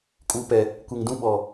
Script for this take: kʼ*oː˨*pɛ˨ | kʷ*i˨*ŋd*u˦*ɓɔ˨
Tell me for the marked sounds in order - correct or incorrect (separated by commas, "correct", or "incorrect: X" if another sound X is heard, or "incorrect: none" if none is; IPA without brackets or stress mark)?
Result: incorrect: uː˨, incorrect: e˨, incorrect: ũ˦